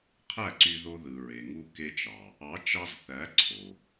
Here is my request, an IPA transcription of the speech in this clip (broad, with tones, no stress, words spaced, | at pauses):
qʰæ˦˨ǀy˧ðo˧ ðɯ˨ɹe˨ŋu˧ ke˧t͡ʃɑ˨ | ɑ˨˦t͡ʃɑ˧z θæ˨˦ ǀʰo˨